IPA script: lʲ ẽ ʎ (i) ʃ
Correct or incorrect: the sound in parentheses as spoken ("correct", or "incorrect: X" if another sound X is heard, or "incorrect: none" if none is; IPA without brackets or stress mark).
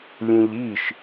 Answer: correct